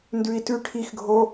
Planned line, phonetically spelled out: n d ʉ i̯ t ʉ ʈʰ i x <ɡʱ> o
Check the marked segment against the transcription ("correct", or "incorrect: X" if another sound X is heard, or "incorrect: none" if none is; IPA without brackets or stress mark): correct